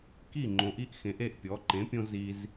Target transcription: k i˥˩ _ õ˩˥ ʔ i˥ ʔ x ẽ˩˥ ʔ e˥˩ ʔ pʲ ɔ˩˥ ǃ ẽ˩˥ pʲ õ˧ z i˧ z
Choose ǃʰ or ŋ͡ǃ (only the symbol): ŋ͡ǃ